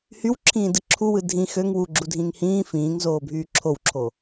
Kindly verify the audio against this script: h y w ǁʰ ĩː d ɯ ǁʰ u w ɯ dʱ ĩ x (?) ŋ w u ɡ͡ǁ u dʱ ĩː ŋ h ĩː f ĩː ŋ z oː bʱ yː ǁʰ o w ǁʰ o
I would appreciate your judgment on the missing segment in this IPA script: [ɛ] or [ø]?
ø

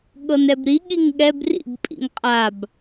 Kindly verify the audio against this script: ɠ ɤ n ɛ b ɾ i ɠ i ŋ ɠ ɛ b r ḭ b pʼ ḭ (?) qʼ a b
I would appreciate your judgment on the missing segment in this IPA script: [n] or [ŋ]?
ŋ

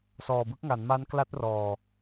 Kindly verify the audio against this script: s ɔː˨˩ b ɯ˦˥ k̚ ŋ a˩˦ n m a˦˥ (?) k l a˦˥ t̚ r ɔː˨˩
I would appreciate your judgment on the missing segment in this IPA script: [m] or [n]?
n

